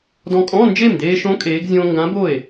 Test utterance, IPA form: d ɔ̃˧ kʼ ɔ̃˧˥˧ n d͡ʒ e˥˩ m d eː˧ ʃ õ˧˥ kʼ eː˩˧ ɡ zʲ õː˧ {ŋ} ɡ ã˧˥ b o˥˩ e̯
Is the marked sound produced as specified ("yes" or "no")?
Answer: yes